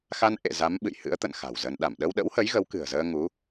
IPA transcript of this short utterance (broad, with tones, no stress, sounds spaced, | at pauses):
x a˧ n ʔ ḛ˧˨ z a˨˦ m ɓ ɨ̰˧˨ j h ɨ̰˧˥ ə̯ t̪ ə̰˧˨ n x a̤˨˩ w z ə˧ n ɗ a˧˩ m ɗ ə˧ w ɗ ə̰˧˥ w h ə˨˦ j ɣ ə˨˦ w k ɨ̤˨˩ ə̯ z əː˧ ŋ u˨˦